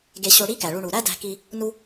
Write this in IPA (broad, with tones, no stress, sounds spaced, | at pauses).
ɡ e˧ ɕ o˧ ɽ i˥ k æ˩ ɭ u˧ ɳ u˩ ɾ æ˥ d æ̤˧ k i˧ | n u˥